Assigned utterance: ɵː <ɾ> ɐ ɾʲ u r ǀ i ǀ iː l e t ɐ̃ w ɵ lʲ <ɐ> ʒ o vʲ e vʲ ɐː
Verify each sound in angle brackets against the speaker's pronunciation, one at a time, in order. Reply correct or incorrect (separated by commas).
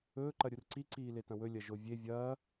incorrect, correct